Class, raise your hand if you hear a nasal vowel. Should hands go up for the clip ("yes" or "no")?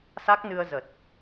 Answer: no